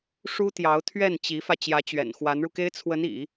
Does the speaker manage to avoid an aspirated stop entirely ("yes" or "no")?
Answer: no